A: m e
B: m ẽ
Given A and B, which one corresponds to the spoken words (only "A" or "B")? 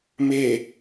A